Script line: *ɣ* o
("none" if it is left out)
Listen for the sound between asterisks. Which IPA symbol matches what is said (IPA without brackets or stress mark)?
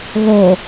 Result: ɣ